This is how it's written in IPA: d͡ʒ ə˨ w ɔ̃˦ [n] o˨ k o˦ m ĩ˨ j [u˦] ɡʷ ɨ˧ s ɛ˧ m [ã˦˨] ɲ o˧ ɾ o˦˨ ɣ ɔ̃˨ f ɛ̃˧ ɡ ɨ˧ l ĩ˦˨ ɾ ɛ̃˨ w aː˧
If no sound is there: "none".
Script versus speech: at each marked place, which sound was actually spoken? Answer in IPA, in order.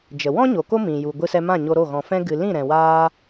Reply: ɲ, u˨, ã˦˨

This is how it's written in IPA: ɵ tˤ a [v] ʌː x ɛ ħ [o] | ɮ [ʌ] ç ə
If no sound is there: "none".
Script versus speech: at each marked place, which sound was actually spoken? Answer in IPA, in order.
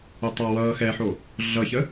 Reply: w, o, ʌ

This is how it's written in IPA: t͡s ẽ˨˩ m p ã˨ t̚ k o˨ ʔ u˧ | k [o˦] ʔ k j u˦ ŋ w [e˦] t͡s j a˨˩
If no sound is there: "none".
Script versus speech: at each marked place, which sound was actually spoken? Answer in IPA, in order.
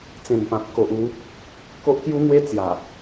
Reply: o˦, e˦

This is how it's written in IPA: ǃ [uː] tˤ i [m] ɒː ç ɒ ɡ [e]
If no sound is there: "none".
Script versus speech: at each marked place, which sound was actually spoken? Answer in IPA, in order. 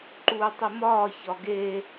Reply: uː, m, e

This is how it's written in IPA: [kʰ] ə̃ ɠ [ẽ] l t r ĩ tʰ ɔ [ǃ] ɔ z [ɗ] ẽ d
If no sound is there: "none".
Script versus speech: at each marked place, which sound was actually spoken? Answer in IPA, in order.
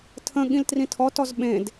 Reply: tʰ, ĩ, t, ɓ

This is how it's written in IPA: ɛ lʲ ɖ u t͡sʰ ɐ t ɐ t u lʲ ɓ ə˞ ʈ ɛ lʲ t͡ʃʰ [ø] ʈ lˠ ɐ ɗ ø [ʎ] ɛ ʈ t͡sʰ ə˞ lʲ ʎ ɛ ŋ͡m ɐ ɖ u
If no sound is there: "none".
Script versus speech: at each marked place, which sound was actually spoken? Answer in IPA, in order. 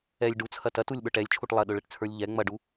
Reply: u, ɭ

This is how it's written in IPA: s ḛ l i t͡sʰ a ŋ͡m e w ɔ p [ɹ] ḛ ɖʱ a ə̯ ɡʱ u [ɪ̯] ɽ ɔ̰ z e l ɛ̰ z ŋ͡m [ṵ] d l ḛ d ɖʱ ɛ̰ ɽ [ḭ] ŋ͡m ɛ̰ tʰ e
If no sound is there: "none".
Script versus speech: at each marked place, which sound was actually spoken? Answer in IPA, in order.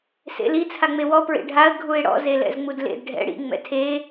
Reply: ɹ, ɪ̯, u, ḭ

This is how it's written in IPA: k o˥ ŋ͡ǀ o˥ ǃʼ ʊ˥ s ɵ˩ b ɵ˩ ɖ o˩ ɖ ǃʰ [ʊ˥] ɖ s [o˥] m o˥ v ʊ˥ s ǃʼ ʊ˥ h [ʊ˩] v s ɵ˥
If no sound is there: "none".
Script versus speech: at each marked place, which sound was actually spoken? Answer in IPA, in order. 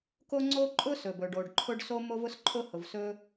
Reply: ʊ˥, o˥, ʊ˩

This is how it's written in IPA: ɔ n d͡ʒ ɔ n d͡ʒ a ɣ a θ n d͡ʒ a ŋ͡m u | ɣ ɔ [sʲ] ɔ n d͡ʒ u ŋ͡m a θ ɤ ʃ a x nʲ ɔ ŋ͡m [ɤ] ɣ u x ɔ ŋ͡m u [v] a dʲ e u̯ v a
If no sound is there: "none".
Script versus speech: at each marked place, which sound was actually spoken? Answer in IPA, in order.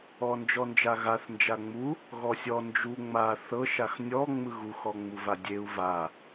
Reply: sʲ, ɯ, v

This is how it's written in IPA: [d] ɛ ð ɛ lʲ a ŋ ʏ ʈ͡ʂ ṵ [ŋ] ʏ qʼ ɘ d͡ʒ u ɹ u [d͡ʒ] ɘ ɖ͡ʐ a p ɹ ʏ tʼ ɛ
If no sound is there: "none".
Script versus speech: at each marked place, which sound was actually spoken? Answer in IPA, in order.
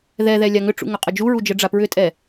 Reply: ð, ŋ, d͡ʒ

